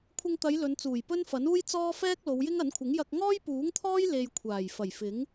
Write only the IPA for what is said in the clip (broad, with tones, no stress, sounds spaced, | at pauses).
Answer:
kʷʰ ɪ˧ ŋ t̪ ɐ˨˧ j l ɵ˨˧ n t͡s uː˨˩ j p ɵ˥ n f ɐ˨˥ n uː˥ j t͡s ɔː˥ f ɛː˥ k̚ l o˨˧ w j ɪ˥ ŋ ɐ˨˥ n kʷʰ ɪ˨˥ ŋ j ɐ˧ k̚ ŋ ɔː˥ j p uː˨˥ ŋ t̪ʰ ɔː˥ j l e˧ j kʷʰ aː˨˩ j f ɐ˨˩ j f ɪ˨˥ ŋ